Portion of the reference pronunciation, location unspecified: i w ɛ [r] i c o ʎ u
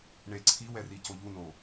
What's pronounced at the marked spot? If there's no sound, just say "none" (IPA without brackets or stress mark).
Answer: r